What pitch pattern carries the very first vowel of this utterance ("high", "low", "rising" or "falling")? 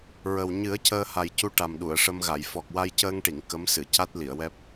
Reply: low